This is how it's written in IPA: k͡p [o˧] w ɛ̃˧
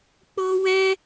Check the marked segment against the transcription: correct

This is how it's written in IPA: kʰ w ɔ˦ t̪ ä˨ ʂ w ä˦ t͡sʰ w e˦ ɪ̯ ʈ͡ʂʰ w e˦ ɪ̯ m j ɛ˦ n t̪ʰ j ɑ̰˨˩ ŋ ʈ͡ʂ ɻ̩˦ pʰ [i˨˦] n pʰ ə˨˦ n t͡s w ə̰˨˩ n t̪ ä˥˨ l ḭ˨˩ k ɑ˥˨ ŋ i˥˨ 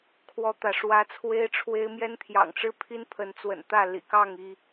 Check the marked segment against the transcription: incorrect: i˦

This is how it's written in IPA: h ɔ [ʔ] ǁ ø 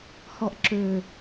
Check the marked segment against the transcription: correct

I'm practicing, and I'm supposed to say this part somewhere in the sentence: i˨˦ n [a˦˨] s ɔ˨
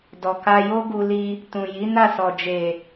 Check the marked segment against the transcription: correct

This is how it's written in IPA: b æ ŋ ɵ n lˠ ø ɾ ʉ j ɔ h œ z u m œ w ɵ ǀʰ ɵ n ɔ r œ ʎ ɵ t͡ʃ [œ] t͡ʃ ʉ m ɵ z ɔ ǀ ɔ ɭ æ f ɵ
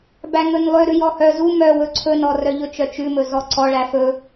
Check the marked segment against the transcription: correct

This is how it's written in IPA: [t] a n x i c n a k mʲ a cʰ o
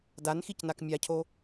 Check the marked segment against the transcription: incorrect: d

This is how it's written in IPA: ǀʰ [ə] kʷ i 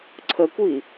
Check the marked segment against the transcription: correct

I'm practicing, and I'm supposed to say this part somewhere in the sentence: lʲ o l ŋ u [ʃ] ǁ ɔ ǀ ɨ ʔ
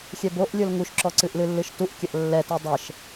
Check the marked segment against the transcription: correct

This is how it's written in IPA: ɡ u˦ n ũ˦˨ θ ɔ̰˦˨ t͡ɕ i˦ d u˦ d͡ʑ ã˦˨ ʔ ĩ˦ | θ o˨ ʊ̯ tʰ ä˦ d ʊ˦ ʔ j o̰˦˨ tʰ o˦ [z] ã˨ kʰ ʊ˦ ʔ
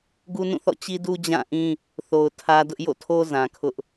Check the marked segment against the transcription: correct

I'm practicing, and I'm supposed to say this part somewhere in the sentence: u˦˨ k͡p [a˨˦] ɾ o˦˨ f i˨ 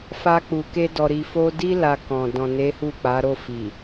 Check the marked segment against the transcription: correct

